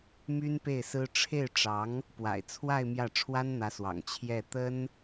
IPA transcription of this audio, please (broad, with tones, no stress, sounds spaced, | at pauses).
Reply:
m y˥ n p e˥˩ ɪ̯ s ɹ̩˥ ʈ͡ʂʰ e˥˩ ɪ̯ ʈ͡ʂ ɑ˧˥ ŋ | p w a̰˨˩ ɪ̯ t͡sʰ w a˥˧ ɪ̯ m j ä˥˩ ʈ͡ʂʰ w a˥ n n̪ ä˧˥ s w ɑ̰˨˩ ŋ t͡ɕʰ j ɛ˥˩ t̪ ə˥ n